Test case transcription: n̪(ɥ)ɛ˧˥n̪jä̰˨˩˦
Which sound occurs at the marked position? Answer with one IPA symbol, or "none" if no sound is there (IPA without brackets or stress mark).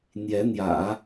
j